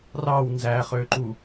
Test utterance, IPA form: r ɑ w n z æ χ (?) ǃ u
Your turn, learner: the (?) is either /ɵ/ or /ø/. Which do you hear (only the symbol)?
ø